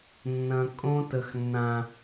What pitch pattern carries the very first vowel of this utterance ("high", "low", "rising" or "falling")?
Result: low